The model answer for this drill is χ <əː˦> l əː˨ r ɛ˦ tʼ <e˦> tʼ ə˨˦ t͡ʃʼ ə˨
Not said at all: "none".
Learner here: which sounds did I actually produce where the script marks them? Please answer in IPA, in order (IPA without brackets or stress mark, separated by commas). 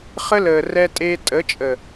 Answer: ə˦, e˦